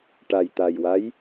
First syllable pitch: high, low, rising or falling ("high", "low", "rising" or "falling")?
low